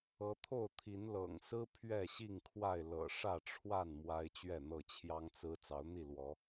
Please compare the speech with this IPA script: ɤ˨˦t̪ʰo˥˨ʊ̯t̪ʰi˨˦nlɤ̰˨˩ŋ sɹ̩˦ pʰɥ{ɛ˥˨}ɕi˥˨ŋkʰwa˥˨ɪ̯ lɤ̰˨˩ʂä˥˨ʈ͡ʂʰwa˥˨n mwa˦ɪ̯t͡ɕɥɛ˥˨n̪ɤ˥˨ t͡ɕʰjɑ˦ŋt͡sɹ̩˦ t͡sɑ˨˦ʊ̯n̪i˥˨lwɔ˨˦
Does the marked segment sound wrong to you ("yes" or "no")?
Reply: no